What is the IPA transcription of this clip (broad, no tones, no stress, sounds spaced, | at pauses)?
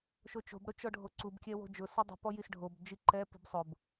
ʃ o t͡ʃ o̤ b ɽ ʊ t͡ʃ ɔ ɖʱ o ǀ u b kʲ ɛ w o̤ d͡ʒ ʊ s ɔ dˤ i̤ p ɔ j i s ɖʱ o b d͡ʒ i ǃ ɛ p i̤ b sˤ ʊ b